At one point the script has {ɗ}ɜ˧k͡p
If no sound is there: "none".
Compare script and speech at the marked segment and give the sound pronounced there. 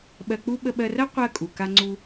ɓ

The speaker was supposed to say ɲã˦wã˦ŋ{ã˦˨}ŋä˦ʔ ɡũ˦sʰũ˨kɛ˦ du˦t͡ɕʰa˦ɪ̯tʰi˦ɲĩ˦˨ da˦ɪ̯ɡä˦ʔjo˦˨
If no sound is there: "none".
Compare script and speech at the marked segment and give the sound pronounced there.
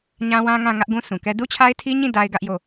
ã˦˨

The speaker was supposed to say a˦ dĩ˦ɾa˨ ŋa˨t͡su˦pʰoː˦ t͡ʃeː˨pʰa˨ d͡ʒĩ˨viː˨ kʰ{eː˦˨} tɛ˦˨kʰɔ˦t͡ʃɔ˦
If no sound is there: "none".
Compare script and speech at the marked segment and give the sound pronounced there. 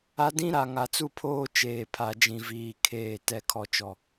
eː˦˨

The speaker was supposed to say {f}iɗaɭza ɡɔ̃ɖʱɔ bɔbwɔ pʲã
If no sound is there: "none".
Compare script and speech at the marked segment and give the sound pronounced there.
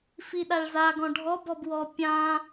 f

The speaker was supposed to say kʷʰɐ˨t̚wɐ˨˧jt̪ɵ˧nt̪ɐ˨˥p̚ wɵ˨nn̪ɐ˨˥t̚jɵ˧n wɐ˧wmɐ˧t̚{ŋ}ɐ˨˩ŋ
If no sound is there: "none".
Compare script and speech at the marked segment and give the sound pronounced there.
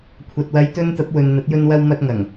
ŋ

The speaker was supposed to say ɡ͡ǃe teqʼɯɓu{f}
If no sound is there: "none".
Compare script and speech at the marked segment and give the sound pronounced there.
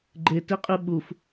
f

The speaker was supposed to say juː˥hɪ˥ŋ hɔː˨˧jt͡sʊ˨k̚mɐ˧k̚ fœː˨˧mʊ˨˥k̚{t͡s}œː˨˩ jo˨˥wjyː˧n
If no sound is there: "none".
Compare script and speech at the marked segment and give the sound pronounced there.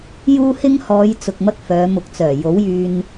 t͡s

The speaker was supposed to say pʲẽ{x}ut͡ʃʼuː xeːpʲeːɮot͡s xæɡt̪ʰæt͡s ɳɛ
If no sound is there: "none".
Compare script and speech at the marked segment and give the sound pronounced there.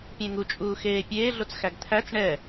ŋ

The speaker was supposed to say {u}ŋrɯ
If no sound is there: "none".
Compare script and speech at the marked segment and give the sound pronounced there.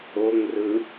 o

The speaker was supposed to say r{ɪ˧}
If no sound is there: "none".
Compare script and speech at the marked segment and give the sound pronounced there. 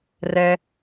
ɛ˧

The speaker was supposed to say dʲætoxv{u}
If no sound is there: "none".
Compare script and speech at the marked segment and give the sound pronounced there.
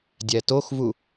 u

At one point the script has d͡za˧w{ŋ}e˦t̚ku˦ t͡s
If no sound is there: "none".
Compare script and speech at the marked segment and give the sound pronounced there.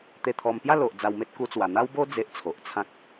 m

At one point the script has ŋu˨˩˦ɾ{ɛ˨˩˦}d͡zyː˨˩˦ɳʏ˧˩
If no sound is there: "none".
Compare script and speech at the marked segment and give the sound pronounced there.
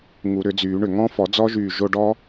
ʏ˨˩˦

